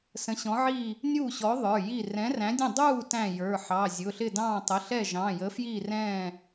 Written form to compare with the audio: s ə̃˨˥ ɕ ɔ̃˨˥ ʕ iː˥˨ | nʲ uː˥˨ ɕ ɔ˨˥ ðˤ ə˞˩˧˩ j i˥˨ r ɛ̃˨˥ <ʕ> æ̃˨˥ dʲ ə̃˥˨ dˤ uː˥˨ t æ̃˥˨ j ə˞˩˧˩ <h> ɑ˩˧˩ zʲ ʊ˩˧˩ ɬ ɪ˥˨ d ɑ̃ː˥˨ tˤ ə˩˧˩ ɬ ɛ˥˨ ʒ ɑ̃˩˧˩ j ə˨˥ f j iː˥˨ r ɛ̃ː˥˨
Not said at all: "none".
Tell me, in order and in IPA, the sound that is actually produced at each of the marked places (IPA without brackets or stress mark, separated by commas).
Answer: r, ħ